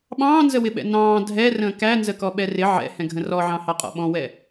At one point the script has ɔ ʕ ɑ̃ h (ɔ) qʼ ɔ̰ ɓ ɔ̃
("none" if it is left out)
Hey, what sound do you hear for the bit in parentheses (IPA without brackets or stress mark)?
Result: ɑ